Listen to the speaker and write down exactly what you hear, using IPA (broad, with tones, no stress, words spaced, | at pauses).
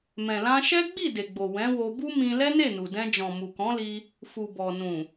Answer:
mɛ̃˨lã˧ʃɛ˦ ɡ͡bi˦˨ de˨ɡ͡bo˨ wɛ̃˨˦wo˧ bu˦mĩ˧ lɛ˦ne˦˨nu˨dɛ̃˧ d͡ʒɔ̃˨mu˨kɔ̃˨˦li˧ | fu˨bɔ˨nũ˨